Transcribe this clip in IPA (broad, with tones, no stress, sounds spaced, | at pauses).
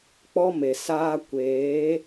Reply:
k͡p ɔ˦ m e˨ s aː˦ kʷ eː˨˦